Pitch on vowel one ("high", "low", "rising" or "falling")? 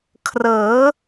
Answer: rising